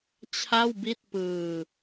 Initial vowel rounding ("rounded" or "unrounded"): unrounded